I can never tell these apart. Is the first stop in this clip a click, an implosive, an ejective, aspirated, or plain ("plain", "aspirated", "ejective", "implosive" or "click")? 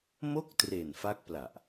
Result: plain